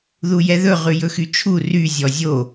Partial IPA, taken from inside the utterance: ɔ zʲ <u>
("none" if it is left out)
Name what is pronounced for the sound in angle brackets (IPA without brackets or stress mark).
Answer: o